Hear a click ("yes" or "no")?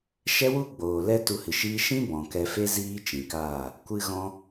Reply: no